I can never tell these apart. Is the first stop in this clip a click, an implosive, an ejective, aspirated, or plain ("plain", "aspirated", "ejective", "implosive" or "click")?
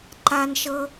click